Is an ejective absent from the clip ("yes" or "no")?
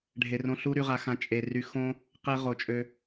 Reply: no